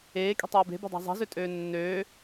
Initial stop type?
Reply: ejective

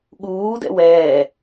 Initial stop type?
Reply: implosive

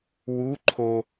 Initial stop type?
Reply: click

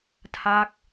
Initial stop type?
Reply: aspirated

